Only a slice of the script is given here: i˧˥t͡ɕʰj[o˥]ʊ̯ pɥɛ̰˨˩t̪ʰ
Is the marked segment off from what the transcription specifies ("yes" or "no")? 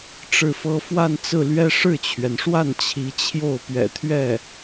yes